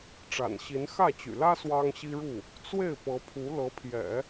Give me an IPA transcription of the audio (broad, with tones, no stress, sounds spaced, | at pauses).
ʈ͡ʂ a̰˨˩ n ɕ i˧˥ n x ä˥˩ t͡ɕ y̰˨˩ l ä˥ s w ɑ˥ ŋ ɕ i˥ ɻ u˥˩ | t͡s w e˥˩ ɪ̯ p ɤ˧˥ pʰ u˧˥ l ɤ˧˥ pʰ j ɛ̰˨˩˦